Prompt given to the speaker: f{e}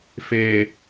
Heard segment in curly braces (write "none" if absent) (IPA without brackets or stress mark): e